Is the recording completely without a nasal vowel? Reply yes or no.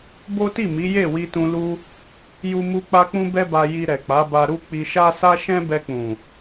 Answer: no